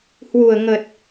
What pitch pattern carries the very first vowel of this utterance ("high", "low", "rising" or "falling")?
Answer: low